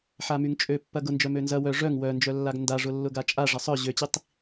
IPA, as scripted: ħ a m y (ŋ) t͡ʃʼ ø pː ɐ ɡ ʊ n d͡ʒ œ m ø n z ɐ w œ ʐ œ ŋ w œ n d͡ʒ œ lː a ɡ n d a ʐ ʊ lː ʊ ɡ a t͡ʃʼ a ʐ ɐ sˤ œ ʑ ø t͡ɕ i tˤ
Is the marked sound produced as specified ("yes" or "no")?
yes